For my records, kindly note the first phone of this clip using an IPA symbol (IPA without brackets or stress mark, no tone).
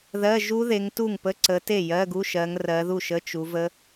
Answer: ð